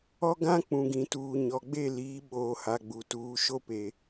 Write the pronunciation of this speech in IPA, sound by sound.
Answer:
ɔ˦ ɡ ã˦ k͡p ũ˨ ɡ ĩ˨ t uː˨ ɲ ɔ˨ ɡ͡b e˦˨ l iː˨˦ ɓ oː˨ h a˨ ɡ͡b u˨ t uː˨˦ ʃ o˦ p e˨

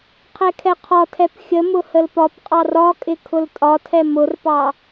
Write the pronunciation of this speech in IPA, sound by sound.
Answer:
qʰ ɛ kʰ ɛ qʰ ɒ tʰ ɛ p xʲ ə m ʊ h ə l p ɒ p qʼ ɑ r ɒ kʼ ɪ kʰ ʊ l tʼ ɒ tʰ ɛ m ʊ r p ɑ

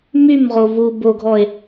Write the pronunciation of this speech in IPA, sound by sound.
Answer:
m y m ʁ o v u b o ɡʱ ɔ e̯

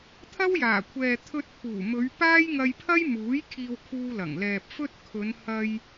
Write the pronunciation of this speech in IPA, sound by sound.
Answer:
t̪ʰ ɐ˥ w j aː˨˩ kʷʰ ɛː˨ t̪ʰ ɵ˧ t̚ pʰ uː˨˩ m ɵ˨˧ ɥ p aː˥ j ŋ ɐ˧ j pʰ ɐ˥ j m uː˨˥ j kʰ iː˧ w kʰ uː˧ l ɐ˨˩ ŋ l ɛː˨ p̚ f ɵ˥ t̚ kʰ ɵ˨˧ n h ɐ˧ j

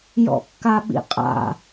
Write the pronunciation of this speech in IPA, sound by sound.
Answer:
j ɔ̰ kː a ɓ ḭ qʼ a̰

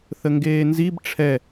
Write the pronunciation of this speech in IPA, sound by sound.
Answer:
θ ə ŋ ɡ eː n z i b ʈ͡ʂʰ ɛ

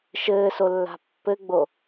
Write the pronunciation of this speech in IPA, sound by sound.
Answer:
ʃ ɘː s o lː a̤ pː ɘ ɡ͡b o

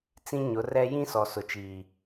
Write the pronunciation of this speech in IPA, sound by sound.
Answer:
t͡s ĩ˦ ɲ ʊ˨˦ r ɛ˦ j ĩ˦ s ɔ˨ s ʊ˨ t͡ʃ iː˨

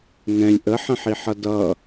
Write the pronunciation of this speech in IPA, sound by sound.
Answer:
ŋ ɛ̃ lʲ ʔ ə ħ ə̃ ħ i ħ ʌ d ʌ

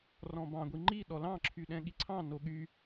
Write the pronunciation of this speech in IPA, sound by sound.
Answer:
r ɔ̃ b ɑ̃ ɡʷ i ŋ͡ǃ i ɗ ɔ l ɑ̃ ǁʰ y ɗ ɛ̃ ɠ i ǀʰ ɑ̃ n o ɠ y

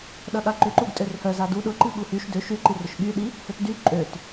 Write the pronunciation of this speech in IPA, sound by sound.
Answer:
ɗ ɐ ɠ a ǃ ʏ ǃ u ɡ tʼ ø r h œ z a d u ɗ ʊ ǃ i ɠ u h y ʃ d ø ʃ y ǃ i r ʊ ʃ ɠ y ɗ i | h ø t d y ǃʼ ø t

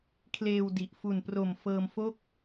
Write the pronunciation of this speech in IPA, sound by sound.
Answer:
kʰ l eː˧ w d i˨˩ ʔ f u˨˩ n p r o˨˩ m f ɤː˧ m f o˥˩ k̚

